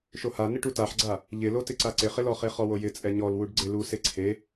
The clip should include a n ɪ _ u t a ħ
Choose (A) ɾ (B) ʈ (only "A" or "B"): B